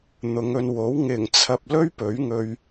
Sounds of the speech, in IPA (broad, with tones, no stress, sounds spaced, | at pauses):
n̪ ʊ˨˧ ŋ ɵ˧ n w o˨˥ w ŋ ɪ˨˩ ŋ t͡sʰ ɐ˨ p̚ l ɵ˥ ɥ p ɵ˨˥ ɥ ŋ ɵ˧ ɥ